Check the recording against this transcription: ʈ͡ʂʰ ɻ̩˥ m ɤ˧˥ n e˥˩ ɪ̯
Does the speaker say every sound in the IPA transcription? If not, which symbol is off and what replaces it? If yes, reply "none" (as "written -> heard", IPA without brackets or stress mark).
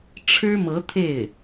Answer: n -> t̪ʰ